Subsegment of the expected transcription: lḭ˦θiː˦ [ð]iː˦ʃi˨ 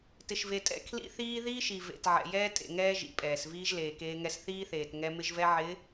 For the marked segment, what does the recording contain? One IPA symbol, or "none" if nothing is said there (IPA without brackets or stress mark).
ð